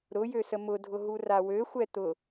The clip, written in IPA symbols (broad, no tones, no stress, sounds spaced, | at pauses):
ɾ ʊ j ø s ə m ʊ dʱ ʊ ɦ u r a w ø xʷ ɛ t̪ ʊ